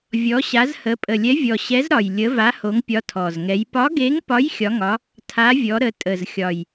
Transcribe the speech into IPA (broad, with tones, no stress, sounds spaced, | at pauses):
vʲ ɔ˨˥ ɕ a˨˥ z h ə˨˥ pʼ ə˨˩ lʲ ɛ˨˥ vʲ ɔ˨˩ ɕ ɛ˨˥ z ɾ ɒ˨˩ j lʲ ə˨˥ v a˨˥ h o˨˥ ŋ pʲ ɒ˨˥ tʰ ɔ˨˩ z ŋ ɛ˨˥ j p ɒ˨˥ ɡ e˨˥ ŋ p ɒ˨˥ j xʲ ɒ˨˥ ŋ ɒ˨˥ | tʰ a˨˥ vʲ ɔ˨˥ ɾ ə˨˥ tʼ ə˨˩ z xʲ ɒ˨˩ j